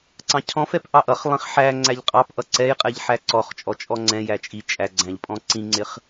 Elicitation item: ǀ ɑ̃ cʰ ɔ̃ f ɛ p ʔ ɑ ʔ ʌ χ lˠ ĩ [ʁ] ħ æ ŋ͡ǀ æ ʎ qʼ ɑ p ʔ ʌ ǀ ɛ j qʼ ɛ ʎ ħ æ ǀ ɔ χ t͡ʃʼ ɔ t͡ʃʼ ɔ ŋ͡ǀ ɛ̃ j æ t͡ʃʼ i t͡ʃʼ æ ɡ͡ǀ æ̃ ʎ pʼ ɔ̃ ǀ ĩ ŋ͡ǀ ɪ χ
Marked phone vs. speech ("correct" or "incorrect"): incorrect